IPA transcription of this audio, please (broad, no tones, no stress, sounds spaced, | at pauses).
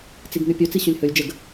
t͡s i ɡ n̪ y pʲ ɵ t͡s i ɕ ɵ lʲ h ɵ lʲ d͡ʒ ə ɡ